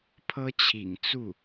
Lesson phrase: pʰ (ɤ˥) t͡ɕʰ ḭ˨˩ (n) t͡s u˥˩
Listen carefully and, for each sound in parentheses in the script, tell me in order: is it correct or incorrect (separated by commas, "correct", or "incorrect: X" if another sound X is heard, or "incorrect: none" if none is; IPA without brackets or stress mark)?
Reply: correct, incorrect: ŋ